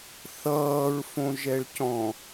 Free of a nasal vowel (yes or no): no